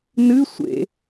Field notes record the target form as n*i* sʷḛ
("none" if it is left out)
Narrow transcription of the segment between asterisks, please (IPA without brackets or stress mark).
ɨ